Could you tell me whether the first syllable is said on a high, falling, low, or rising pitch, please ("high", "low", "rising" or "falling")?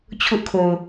high